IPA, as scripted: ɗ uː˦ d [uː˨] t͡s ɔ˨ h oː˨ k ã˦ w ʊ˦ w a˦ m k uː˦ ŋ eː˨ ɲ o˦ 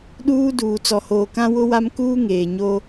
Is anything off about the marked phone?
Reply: no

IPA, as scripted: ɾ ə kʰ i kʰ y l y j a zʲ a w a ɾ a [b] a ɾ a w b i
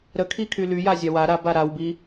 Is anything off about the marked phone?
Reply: no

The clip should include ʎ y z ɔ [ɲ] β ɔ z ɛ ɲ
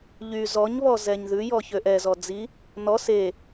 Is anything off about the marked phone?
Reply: no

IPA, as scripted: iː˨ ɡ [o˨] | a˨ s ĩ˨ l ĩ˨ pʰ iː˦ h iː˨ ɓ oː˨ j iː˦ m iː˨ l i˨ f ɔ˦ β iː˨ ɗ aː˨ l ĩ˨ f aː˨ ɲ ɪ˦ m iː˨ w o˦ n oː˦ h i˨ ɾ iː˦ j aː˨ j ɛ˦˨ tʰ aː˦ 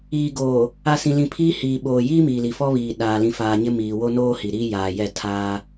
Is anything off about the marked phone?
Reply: yes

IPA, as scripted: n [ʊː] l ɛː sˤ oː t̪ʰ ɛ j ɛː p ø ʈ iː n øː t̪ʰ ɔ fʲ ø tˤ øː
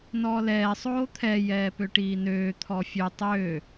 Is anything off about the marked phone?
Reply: yes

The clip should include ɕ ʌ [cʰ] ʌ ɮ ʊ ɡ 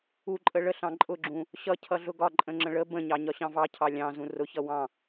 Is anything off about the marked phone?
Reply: no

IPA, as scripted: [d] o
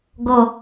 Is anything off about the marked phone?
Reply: yes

